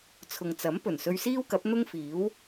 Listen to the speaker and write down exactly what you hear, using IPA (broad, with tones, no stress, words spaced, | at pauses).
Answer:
t͡sʰʊ˨ŋt͡sɐ˨˥m pɵ˨˩nsɵ˧ɥsiː˥wkɐ˨˥p̚ n̪ʊ˥ŋfiː˨˥w